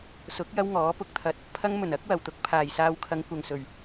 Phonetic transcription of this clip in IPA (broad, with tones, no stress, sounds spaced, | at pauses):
s ʊ˨˥ k̚ j ɐ˥ w ŋ ɔː˨˥ p ʊ˨ k̚ t̪ʰ ɐ˨ t̚ | pʰ ɐ˥ ŋ m ɵ˨˩ n ɐ˥ k̚ w ɐ˨˩ w t̪ ʊ˧ k̚ pʰ aː˨˩ j s aː˧ w kʰ ɐ˨˧ ŋ kʷ ɐ˨ ŋ s ɵ˨˩ ɥ